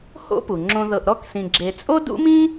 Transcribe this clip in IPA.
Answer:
h o̰˥ p u˩ ŋ͡ǁ õ˧ ð ɤ˧ ʔ ɾ ɔ˥ k s ĩ˧ ɡ͡ǁ e˧ t͡sʼ o˥ d ṵ˥ m ĩ˥

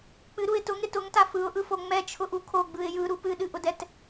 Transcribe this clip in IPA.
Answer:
k͡p ɨ ɾ u ɪ̯ t ʊ ŋ ɾ ɪ t ʊ ŋ t a f ɯ ʊ̯ ʔ ɯ f o ŋ͡m ɛ t͡ʃʰ ʊ ʔ u kʰ o ɡ͡b ɯ ɪ̯ j ɯ ɾ u p ɨ ɗ ɨ ʔ ʊ d ɛ t

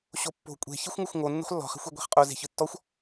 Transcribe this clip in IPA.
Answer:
ɕ o pː o̤ kʷʼ e̤ ç i xʷ ŋ u xʷ ŋ o nː ṳ χ lː ɔ̤ χ e̤ xʷ e ɡʷ e̤ χ qʼ o z e̤ ç ɯ tː ɔ xʷ

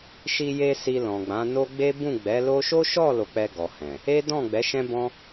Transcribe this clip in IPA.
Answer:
ʃ i˧ j e˧ s i˧ l ɔ̃˨ ɡ͡b ã˨˦ n o˦ ɡ͡b e˦ b ũ˦˨ ɡ͡b ɛ˨˦ l o˦ ʃ o˦ ʃ ɔ˦˨ l o˧ k͡p ɛ˧ ɡ ɔ˨ h ɛ̃˨ | e˦ d ɔ̃˦˨ ɡ͡b ɛ˨˦ ʃ ɛ̃˦ b ɔ̃˦

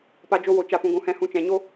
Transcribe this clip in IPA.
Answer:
p a˧ d͡ʒ o˧ w o˨ t͡ʃ a˨ p ũ˨ ɡʷ ũ˨ h ɛ̃˧ h ũ˧ t͡ʃ ɛ̃˨ ɲ o˦

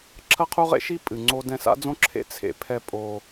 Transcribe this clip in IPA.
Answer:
ǁʰ ɐ˥ qʰ u˥ ʁ ḛ˥ ʃ i˥ pʼ ɨ˩ ŋ͡ǀ o˥ d ɛ̃˧ s a̰˥ d͡z õ˥ ǁʰ ḛ˥ t͡sʰ ḛ˧ pʰ ɛ˧ pʼ o˧

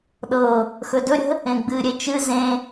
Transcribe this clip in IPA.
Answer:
ɗ ɤ | x ɵ d ɵ ɾʲ ə̤ | ẽ ɡ͡b ɨ ɾʲ e t͡ʃ ɨ z ẽ

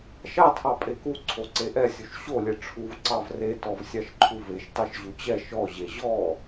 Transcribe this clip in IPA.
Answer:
ʃ ɑ tʰ ɑ pʼ e k u ǀʰ o ǀ e ʔ ɛ sʲ u ʃ ɕ o lʲ e ʈ͡ʂʰ u v ǀ ɑ v r e t ɔ v sʲ ɑ ʃ ǃʰ u v e ʃ t ɑ ʃ ʑ u t͡ɕ ɛ ʃ ɔ ʑ e ʑ ɔ

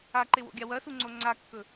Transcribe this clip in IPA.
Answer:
a ǃ e w o̰ ɡʲ a w ɐ s u ŋ͡ǀ o ŋ͡ǀ a kː ɵ

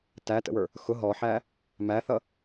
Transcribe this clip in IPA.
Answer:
t æ t ə̰ w ə˞ | x ʊ ɦ ɔ ħ æ | m æ θ ʌ

